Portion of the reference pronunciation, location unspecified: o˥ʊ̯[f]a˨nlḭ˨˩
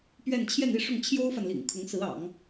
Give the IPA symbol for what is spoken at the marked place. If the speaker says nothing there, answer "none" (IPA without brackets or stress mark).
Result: f